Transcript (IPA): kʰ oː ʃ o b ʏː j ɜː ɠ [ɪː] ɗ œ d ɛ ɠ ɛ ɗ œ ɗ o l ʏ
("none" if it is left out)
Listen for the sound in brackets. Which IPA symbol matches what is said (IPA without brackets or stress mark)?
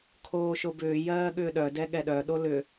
ʏː